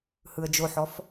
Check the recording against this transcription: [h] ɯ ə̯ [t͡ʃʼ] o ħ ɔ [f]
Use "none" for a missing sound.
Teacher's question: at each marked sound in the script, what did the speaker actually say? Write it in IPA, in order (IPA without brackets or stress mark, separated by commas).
h, d͡ʒ, f